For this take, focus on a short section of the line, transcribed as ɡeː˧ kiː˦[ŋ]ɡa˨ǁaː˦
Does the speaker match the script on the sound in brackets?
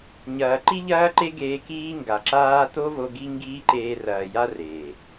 yes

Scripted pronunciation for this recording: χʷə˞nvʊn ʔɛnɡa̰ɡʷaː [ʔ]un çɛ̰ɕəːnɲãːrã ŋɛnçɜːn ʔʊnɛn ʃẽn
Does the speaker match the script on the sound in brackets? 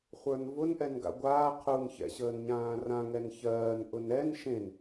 no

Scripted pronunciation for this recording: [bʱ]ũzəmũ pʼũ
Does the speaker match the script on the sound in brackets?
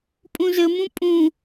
no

